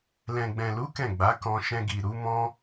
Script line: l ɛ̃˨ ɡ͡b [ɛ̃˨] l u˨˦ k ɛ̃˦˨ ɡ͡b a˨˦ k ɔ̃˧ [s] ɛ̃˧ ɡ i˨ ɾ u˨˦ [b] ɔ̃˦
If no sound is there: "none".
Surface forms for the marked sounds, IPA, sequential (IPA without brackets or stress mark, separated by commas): ɛ̃˨, ʃ, m